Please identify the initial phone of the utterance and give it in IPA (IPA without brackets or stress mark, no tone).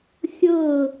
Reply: xʲ